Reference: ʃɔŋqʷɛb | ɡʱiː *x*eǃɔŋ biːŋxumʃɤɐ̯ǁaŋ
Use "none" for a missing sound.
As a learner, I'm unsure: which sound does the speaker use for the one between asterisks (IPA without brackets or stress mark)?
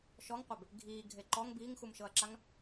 ɡʱ